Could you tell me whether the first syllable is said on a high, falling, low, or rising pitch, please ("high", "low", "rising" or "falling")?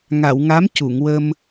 low